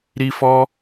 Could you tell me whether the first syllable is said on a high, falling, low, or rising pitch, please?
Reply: high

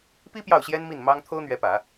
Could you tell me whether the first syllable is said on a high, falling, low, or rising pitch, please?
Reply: high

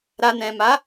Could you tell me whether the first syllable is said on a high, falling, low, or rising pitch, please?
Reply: low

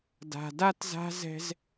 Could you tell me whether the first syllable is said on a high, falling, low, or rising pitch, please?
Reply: low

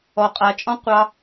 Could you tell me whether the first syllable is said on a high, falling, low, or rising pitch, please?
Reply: high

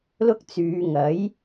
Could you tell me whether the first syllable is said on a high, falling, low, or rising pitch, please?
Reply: high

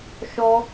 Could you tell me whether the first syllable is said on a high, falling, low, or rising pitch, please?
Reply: high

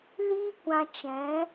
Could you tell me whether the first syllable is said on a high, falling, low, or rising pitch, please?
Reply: high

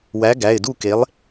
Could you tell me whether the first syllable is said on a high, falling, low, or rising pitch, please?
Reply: rising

